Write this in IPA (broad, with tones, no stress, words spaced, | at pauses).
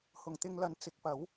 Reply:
hʊ˨˩ŋt̪ɪ˧ŋlɐ˨˥n t͡sɪ˨˥k̚pɐ˨˥w